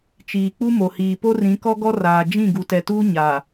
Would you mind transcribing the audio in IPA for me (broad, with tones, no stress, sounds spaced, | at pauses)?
t͡ʃ iː˨ k͡p u˦ m o˨ h iː˨ p o˦ r ĩ˨˦ k ɔ˦ ɡ ɔ˦ r aː˨ d͡ʒ ĩ˦˨ ɡ u˨ t ɛ˨ t uː˦ ɲ a˨